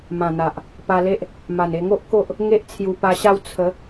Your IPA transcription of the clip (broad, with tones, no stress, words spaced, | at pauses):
mã˨˩n̪a˨ʔ | pa˧le˦ʔ | ma˨˩ne˧ŋo˦ʔ ko˦ʔ | ŋe˦ʔt͡sʰju˧pa˧ɕa˥˧w t͡sʰə˨˦